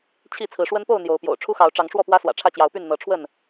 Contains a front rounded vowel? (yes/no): yes